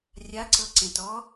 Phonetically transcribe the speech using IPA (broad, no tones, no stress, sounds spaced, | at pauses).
rʲ a ǀ ɤ ǀ ẽ t ɔ